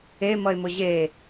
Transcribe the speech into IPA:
e mʌe̯mʊʑe

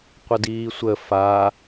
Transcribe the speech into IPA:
qʷədiːsʷə fa

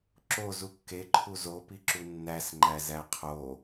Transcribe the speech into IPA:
ǁozu kːeǃʰu zopiǁu nːæsŋ͡ǃæzæ qʰo

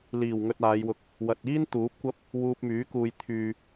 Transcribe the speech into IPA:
liː˨˩w ŋɵ˧t̚aː˨˧jwʊ˧k̚ | wɐ˨t̚iː˥n t̪uː˨˥p̚kʷɐ˥p̚ | wuː˧p̚myː˨˥ kuː˨j t̪ʰyː˨

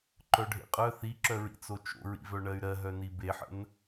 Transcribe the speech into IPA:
ǃœɖʱḛqʼœ θiǁœɹḭt͡so t͡ʃo̰ɹḭvœ ɳɜy̯ɾɜɦœni beħə̰n

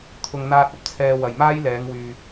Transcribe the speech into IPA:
t̪ʰʊ˨ŋn̪aː˧t̚ ɐ˨p̚t͡sʰɛː˧wɐ˨j maː˥jlɛː˨˧ŋwyː˨

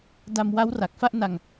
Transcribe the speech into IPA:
da˧mwa˦˥w ra˨˩k̚fa˥˩ʔ na˧ŋ

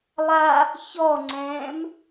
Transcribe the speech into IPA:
lˠa | çɔŋ͡ǀɛ̃ːm

